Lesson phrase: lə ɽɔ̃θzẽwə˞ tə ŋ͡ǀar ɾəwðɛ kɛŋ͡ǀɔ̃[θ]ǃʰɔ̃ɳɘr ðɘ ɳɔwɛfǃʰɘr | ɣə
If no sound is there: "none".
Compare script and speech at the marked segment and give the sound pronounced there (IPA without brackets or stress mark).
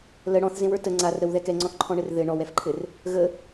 θ